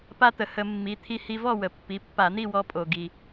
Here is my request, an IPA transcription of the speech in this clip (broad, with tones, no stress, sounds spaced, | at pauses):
p a˧ t̪ ə˩ h ə˧˩˧ mː i˩˧˩ t̪ʰ i˧ h i˧ v ɔ˥˨ w ə˩ pː i˩˧˩ pː a˧˩˧ n̪ i˥˨ w ɔ˧ pʼ o˩ ɡ i˩